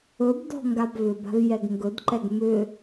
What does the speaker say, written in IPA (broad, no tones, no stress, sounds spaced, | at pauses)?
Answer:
ɵ b d ɔ̤ ŋ ɡ a b v ʏ b a̤ v j ɛ ɡ ŋ ɡ ɵ d ǃ ɛ ɡ m ʏ